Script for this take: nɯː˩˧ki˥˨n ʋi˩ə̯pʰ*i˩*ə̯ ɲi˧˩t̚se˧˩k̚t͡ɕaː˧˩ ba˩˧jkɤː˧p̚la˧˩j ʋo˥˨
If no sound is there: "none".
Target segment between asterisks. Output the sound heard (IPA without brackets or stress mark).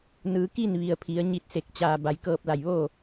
i˩˧